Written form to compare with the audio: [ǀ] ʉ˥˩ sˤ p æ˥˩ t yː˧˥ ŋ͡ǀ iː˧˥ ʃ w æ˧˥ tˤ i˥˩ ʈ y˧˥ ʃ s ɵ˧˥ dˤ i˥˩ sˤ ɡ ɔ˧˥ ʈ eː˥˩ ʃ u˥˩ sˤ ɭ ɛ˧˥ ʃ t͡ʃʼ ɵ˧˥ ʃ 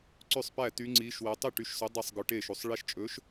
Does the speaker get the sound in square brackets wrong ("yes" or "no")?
no